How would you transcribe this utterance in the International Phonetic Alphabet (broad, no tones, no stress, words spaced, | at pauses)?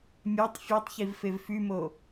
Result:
mʲætˤ fʲɛtˤçiv fevfymo